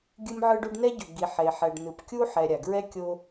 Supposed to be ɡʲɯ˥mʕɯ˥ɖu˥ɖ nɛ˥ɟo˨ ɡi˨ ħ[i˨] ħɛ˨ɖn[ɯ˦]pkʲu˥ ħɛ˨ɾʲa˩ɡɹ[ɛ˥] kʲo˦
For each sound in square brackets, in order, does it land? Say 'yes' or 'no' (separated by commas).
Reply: no, no, yes